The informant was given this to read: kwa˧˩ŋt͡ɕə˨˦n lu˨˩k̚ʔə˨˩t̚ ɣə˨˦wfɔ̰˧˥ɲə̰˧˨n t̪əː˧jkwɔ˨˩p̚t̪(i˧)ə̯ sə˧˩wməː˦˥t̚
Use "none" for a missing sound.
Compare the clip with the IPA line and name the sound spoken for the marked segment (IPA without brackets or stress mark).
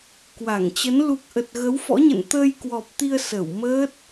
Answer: i˧